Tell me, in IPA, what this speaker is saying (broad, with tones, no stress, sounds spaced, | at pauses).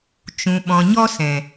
t͡ʃ ũ˨ ɓ ɔ̃˨ ɲ ɔ˧ s ɛ̃˨